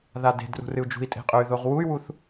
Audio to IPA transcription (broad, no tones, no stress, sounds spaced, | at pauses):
ð a d e̤ d r ṳ r ɨ u̯ d͡ʒ ṳ i̯ tʼ e̤ qʼ ɵ y̯ ð o ʁ w u y̯ w u θ